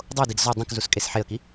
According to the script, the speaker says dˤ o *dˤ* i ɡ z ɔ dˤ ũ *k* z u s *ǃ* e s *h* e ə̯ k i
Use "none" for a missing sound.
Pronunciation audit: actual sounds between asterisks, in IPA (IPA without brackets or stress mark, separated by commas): d, k, kʼ, ħ